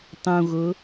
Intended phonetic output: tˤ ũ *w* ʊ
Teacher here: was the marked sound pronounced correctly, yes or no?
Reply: no